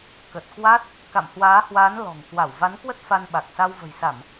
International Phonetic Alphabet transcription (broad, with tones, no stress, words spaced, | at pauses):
kə˨˩t̚ kwa˦˥t̚ | ka̰˧˨mhwaː˨˦hwaː˨˦n lɔ̤˨˩ŋ kwa˧˩wva˨˦n kwə˦˥t̚fa˧n ɓa˨˩k̚ sa˧wvə̤˨˩jsa˧˩˨m